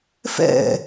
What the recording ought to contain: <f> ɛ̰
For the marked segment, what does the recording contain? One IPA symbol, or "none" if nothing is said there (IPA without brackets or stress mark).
f